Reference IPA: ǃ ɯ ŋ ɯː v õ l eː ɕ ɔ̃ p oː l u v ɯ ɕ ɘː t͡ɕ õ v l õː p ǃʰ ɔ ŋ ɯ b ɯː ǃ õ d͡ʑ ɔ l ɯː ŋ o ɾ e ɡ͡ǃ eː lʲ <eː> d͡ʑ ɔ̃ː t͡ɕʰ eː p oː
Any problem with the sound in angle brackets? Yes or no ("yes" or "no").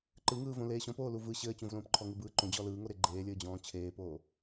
yes